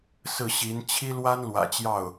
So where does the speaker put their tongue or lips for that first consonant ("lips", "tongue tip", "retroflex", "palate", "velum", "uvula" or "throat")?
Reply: tongue tip